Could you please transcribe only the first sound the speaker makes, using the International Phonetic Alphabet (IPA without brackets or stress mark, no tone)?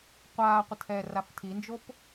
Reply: qʷ